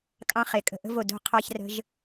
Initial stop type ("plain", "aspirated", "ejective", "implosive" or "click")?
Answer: ejective